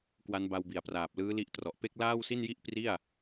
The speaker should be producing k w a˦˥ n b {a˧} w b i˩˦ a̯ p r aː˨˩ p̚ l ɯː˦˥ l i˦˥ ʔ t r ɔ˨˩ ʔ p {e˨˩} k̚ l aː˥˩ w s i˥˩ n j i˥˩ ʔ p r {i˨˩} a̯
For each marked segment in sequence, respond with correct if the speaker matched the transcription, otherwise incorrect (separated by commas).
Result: correct, incorrect, incorrect